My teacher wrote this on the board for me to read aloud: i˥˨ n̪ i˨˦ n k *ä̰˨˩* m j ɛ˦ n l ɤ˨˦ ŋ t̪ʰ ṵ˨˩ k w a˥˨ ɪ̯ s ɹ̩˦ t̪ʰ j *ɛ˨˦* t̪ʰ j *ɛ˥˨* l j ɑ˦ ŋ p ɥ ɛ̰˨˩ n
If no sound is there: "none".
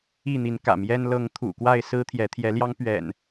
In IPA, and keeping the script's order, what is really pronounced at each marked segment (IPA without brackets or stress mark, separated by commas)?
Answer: ä̰˨˩, ɛ˨˦, ɛ˨˦